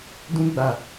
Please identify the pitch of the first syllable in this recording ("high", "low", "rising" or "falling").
high